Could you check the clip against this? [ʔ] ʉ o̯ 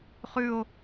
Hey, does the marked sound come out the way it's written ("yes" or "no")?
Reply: no